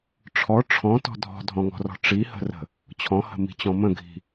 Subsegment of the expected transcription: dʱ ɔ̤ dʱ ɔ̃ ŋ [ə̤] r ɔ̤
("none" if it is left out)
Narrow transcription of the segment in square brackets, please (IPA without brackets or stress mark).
ɔ̤